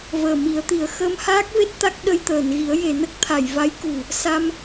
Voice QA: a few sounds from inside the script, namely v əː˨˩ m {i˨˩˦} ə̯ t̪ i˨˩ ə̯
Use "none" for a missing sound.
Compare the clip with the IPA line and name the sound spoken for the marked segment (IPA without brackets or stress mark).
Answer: i˨˩˦